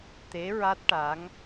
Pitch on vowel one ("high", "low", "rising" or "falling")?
rising